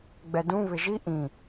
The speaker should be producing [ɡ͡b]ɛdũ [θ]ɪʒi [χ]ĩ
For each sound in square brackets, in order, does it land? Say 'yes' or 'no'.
yes, no, no

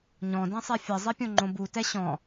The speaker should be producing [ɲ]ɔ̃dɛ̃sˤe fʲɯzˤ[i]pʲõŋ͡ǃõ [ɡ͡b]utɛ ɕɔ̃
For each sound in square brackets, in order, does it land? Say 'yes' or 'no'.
yes, yes, no

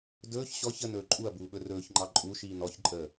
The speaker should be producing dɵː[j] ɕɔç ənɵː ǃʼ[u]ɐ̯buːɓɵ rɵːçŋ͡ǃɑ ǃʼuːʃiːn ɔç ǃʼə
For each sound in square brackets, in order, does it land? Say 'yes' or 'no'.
no, yes

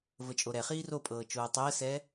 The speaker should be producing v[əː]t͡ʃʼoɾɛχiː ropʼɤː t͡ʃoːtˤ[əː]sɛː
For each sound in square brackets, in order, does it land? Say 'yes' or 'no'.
no, yes

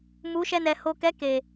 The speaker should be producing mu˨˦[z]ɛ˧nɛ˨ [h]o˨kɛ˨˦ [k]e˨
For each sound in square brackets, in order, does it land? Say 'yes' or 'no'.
no, yes, yes

